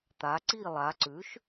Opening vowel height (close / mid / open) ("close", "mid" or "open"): open